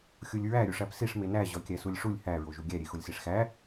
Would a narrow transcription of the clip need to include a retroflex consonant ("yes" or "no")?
yes